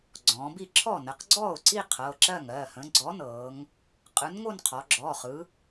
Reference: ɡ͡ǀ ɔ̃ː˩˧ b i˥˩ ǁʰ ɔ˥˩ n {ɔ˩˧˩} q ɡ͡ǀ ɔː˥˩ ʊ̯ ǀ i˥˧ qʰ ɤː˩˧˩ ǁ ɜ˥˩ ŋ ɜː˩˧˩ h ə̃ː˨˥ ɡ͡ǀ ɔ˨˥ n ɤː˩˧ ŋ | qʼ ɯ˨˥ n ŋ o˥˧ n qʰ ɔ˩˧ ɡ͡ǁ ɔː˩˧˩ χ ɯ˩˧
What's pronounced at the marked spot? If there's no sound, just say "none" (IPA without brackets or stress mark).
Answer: ə˩˧˩